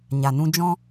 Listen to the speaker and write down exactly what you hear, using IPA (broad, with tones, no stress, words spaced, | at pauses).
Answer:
ɲa˨nũ˦ d͡ʒɔ̃˦